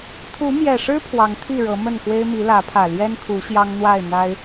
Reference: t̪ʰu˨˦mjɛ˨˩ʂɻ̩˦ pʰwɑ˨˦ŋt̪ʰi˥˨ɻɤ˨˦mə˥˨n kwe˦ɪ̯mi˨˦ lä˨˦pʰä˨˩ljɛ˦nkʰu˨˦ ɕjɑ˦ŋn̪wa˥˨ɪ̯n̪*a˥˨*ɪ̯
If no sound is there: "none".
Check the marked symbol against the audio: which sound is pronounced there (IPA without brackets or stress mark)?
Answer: a˦